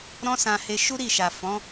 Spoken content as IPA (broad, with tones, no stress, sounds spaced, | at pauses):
ɾ ɔ̃˦ s ã˧ h e˧ ʃ u˦ ɾ i˦˨ ʃ a˨ f ɔ̃˨˦